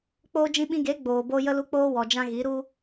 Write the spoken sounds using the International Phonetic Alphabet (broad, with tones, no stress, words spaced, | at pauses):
k͡poː˧ d͡ʒĩ˧ɓĩ˧ɡe˨˦ ɡ͡boː˨bo˧ jə˧lu˧k͡poː˧ wɔ˨d͡ʒã˧ ɣi˨˦ ɾu˧